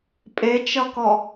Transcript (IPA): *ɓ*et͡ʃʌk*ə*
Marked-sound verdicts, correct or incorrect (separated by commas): incorrect, incorrect